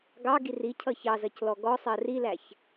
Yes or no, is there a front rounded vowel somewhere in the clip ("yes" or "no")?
no